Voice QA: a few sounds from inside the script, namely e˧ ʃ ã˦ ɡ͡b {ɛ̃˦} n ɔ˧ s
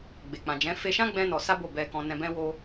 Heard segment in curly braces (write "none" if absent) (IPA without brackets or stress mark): ɛ̃˦